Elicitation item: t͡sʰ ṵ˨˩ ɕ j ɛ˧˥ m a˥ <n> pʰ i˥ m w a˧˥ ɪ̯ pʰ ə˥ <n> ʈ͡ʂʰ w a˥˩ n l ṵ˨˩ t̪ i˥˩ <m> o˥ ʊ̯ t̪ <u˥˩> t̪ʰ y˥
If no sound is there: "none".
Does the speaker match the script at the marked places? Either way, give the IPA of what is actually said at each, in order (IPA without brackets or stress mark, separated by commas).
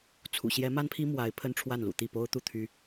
n, n, p, u˥˩